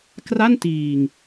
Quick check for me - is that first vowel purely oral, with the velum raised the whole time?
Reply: yes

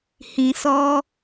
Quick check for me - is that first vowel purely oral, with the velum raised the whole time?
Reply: no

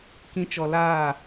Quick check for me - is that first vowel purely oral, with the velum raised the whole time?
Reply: no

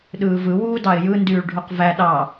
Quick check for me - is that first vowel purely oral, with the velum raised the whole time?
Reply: yes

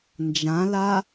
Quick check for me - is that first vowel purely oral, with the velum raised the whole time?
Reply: no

